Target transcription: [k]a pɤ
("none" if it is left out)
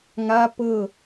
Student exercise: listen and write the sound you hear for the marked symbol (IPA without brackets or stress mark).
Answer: ŋ